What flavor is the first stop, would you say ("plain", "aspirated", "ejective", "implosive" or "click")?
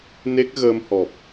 plain